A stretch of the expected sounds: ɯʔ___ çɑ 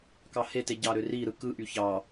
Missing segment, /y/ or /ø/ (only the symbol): y